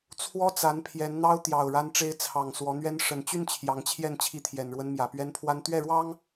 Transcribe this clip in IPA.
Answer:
t͡sʰwɔ˦t͡sa˨˦n pʰjɛ˨˦nn̪ɑ˦ʊ̯ t̪jɑ˨˩ʊ̯ ɻa˦nʈ͡ʂe˦ɪ̯ t͡sʰɑ˨˩ŋ swɔ˨˦n̪ɥɛ˦n ʂə˨˩nt͡ɕy˥˨n t͡ɕʰjɑ˨˦ŋt͡ɕʰjɛ˥˨n t͡ɕʰi˦t̪ʰjɛ˨˩nɻwə˦nmjä˨˩ pɥɛ˦npʰwa˦n t̪ɥɛ˥˨ɻwɑ˦ŋ

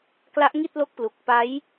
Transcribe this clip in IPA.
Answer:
kla˦˥ʔŋi˥˩t̚lo˦˥k̚plu˨˩k̚ pa˦˥j

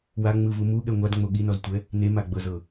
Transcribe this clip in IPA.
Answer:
waŋ͡mɯvu muɠɛ ŋʷadŋ͡mo ɠinɔztʷɛ | nemaɡ͡bɤzɤ

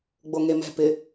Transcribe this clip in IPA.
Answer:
ɡ͡boŋemɛ̤pɪ

